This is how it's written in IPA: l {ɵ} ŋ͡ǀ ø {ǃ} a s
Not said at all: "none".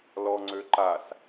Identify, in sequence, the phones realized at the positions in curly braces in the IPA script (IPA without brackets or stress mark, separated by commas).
ɔ, ǃ